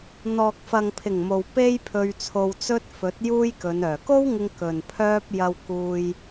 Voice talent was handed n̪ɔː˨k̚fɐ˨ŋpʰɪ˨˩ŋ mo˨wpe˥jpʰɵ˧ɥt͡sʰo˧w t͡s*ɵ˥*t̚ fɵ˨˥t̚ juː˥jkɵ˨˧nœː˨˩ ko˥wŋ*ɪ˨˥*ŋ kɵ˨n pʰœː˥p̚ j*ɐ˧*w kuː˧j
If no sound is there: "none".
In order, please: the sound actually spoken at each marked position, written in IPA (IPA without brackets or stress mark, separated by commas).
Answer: ɵ˥, ɪ˧, ɐ˧